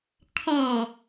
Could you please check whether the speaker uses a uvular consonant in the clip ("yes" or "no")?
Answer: no